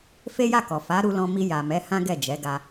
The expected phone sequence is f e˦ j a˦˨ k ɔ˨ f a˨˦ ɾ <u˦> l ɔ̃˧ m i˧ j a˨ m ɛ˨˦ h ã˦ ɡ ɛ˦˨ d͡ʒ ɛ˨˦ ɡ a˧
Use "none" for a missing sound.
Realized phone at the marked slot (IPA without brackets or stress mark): u˧